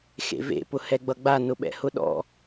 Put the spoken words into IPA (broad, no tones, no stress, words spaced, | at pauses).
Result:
xḛvḛ pʊhɛɡ͡bʌɡ͡ba nʊɓɛ̰hʊɗɔ̰